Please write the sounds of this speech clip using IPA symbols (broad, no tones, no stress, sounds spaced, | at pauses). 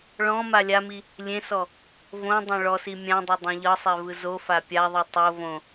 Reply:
ɭ ɔ̃ m a lʲ a m i | lʲ ẽ s ɔ | v õ dˤ õ ɭ ɔ s i mʲ ã dˤ o dˤ ẽ ʎ ɤ sˤ ɛ v ɯ z o f a pʲ a ðˤ u tˤ o v õ